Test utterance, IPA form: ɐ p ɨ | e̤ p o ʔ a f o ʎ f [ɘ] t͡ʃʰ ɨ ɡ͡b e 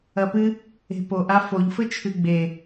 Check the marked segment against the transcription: correct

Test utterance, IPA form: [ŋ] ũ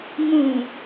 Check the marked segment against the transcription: correct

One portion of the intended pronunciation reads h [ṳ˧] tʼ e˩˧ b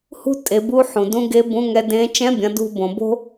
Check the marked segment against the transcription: incorrect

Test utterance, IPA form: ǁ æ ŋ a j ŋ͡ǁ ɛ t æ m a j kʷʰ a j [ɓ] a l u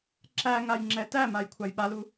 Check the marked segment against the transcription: correct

